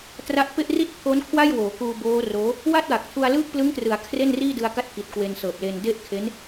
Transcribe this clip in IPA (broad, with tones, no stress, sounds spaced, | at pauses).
t r a˦˥ ʔ p e˥˩ ʔ r i˥˩ t̚ pʰ o˦˥ n kʰ w a˥˩ j w oː˩˦ k uː˧ b oː˦˥ r oː˦˥ | w a˥˩ t̚ w a˨˩ k̚ tʰ u˧ a̯ l ɯː˥˩ k̚ p l ɯ˦˥ ŋ t r ɯ˩˦ a̯ kʰ r e˥˩ n r iː˥˩ d ɯ˧ a̯ k a˦˥ t̚ k i˨˩ t̚ k w e˧ n s ɤː˨˩ p̚ l e˧ n d e˥˩ ʔ kʰ e˦˥ n